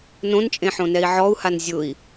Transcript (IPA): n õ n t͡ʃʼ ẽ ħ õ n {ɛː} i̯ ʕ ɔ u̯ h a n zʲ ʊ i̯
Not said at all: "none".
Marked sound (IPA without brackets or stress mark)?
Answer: ɛ